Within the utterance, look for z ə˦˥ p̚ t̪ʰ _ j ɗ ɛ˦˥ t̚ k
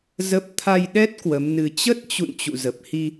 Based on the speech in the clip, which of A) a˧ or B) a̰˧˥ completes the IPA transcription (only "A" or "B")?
A